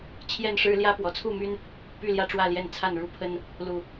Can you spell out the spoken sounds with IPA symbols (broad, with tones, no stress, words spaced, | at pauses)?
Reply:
t͡ɕʰjɛ˥˨nʂɻ̩˦ ljä˦pwɔ˨˩t͡sʰu˥˨my˦n | py˥˨ljä˥˨ʈ͡ʂwä˥˨ljɛ˥˨n t͡sʰa˥˨nɻu˥˨pʰə˦n | lu˨˩